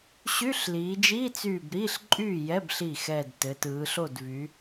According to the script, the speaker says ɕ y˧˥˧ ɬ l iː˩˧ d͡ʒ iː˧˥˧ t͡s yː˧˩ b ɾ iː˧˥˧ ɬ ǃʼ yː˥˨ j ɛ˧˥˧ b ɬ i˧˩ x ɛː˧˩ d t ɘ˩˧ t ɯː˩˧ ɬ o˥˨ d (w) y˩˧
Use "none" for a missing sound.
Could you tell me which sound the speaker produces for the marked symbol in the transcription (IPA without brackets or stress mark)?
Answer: v